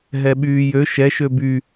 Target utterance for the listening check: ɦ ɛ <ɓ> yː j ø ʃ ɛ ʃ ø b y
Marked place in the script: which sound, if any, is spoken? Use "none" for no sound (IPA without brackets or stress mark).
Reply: ɓ